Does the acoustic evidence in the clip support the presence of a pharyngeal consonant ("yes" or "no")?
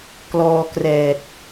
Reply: no